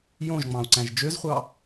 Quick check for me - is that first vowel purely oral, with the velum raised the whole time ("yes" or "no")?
no